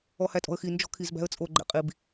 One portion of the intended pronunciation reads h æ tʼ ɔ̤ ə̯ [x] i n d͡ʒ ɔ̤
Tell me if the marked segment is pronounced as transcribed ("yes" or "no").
yes